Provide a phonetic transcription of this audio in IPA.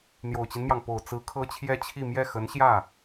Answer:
n̪ j o˨˩ ʊ̯ t͡ɕ i˦ n m j ɑ˩ ŋ p o˨˩ ʊ̯ t͡s ɹ̩˧˥ kʰ ɤ˥ t͡ɕʰ j ɛ˥˧ t͡ɕʰ i˥˧ m j ɛ˥˩ x ə˧˥ n ɕ j ä˥˩

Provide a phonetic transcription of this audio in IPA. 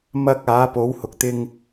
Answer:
m ɐ˧ k̚ aː˨˥ p o˨˥ w h ʊ˨ k̚ t̪ ɪ˧ ŋ

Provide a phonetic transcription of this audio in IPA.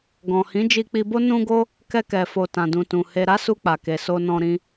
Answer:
ɡ ɔ̃˨ h ĩ˨˦ d͡ʒ i˧ k͡p i˧ b o˦ n ũ˧ ɡ o˧ | k ɛ˧ k ɛ˨ f o˨ t ã˨ d ũ˨ t ũ˨ h e˧ ɾ a˦ s u˧ k͡p a˨ k e˨ s o˧ n ɔ̃˧ ɾ ĩ˧

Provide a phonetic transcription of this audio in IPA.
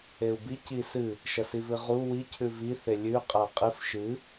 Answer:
e u̯ b i c i s ɨ | ʃ ɐ s i v ɨ ʁ u w i cʰ ʉ v i θ e lʲ ʉ qʼ a qʼ ɨ f ʃ ɨ

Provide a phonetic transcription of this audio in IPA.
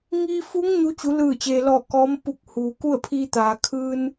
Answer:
ŋ iː˧ f u˧˥ ŋ ɲ u˧˥ t͡ɕ u˩˧ l ɯː˧˩ t͡ɕ eː˩ l ɔː˧˩ k ɔː˧˥ m p u˧˩ k̚ h uː˩ k u˥˨ ə̯ pʰ iː˧ t̪ aː˩ kʰ ɯː˧ n

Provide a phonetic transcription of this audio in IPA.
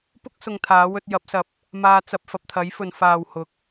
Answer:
p ʊ˥ k̚ s ʊ˧ ŋ t̪ʰ aː˨˥ w ɵ˧ t̚ j ɐ˨˥ p̚ s ɐ˨ p̚ | m aː˧ t͡s ɐ˧ p̚ f ɐ˨ p̚ t̪ʰ ɐ˨˥ j f ɵ˨ n f aː˨ w h ʊ˨˥ k̚

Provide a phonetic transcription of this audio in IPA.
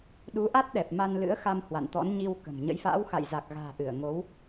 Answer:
ɗ u˨˦ ʔ a˦˥ t̚ ɗ ɛ˨˩ p̚ m a˧ n l ɨ̰˧˥ ə̯ x a˧ m h w a̰˧˨ n t̪ ɔ̰˧˥ n ɲ i˧ w k ə̤˨˩ m ɲ ə̰˧˥ j f a̰ː˧˥ w x a̰˧˨ j z a˨˩ k̚ ɣ a̤ː˨˩ ʔ ɨ˧˩ ə̯ ŋ o˨˦ w

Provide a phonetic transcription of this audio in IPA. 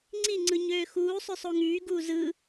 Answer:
ŋ͡ǀ i ŋ͡ǀ ɯ ɲ øː x uː sˤ ø sˤ o ŋ yː ɡ uː z ɯ

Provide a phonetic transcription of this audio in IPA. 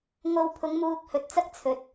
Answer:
ŋ o˧ w pʰ ʊ˨˧ ŋ m uː˧ k̚ h ɵ˨ t̚ t͡s ɐ˥ k̚ t͡sʰ ɵ˨ t̚

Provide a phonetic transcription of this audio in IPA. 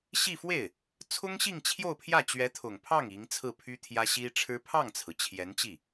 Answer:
ɕ i˥˧ f w e˥˩ ɪ̯ | t͡sʰ ʊ˥ ŋ ɕ i˥˧ ŋ t͡ɕʰ j o˥˧ ʊ̯ pʰ j ä˥˩ t͡ɕ ɥ ɛ˧˥ t̪ʰ ʊ˨˩ ŋ pʰ ɑ˥˩ ŋ i˧˥ ŋ t͡sʰ ɹ̩˥˩ pʰ y˥ t̪ʰ j ä˥ ɕ i˥ ʈ͡ʂʰ ɻ̩˥ pʰ ɑ˥˩ ŋ t͡sʰ ɹ̩˩ t͡ɕʰ j ɛ˧˥ n t͡ɕ i˥˩

